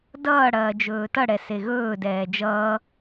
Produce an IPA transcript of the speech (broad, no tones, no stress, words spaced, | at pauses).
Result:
dʌː ɽɐːd͡ʒɵːtʌ ɽɛseɣɵː dɛːd͡ʒʌː